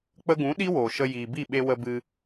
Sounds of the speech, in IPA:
k͡pə˧ɡũ˨˦ ɗi˦woː˨ʃə˧ jiː˨bi˦˨ ɓe˧ wə˧bɨ˧

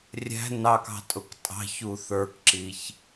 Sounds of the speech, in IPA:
rʲæ̤ nɑkɑ̤tʼʊk tʼɑ̤çu θə˞kǁiç

